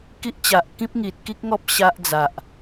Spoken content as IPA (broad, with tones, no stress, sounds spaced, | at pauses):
k i˦ ʔ t͡ɕ a˨ ʔ k ĩ˦ p̚ ŋ i˨ t̚ k i˦ k̚ ŋ ɔ˦ p̚ ɕ a˦ ʔ d͡z a˨ ʔ